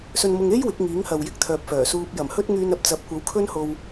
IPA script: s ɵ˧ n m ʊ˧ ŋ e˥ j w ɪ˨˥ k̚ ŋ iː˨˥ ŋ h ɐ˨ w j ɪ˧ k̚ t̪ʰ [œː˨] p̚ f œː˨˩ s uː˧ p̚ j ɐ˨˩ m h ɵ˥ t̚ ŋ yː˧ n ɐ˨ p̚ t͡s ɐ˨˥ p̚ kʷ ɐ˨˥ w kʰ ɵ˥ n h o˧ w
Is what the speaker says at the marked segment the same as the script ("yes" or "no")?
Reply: yes